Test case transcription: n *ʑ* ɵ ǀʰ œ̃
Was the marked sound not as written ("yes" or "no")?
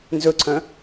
yes